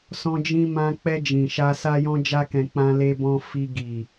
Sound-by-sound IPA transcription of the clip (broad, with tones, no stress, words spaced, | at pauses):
sɔ̃˧d͡ʒĩ˧mã˧k͡pɛ˧ d͡ʒĩ˨ʃa˧ sa˦jɔ̃˦d͡ʒa˦kɛ̃˧ k͡pã˧le˧bɔ̃˧ fi˧ ɡi˨